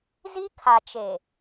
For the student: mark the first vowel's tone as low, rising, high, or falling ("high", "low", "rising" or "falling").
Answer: high